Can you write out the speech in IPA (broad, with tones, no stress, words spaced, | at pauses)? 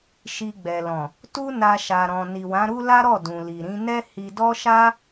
ʃi˧ɡ͡bɛ˨lɔ̃˨ | tu˦ na˧ʃa˨ ɾɔ̃˨ ni˨wã˨˦ɾu˦ la˦ɾɔ˦˨dũ˨li˨ ɾĩ˨˦ nɛ˦ hi˧dɔ˦ʃa˦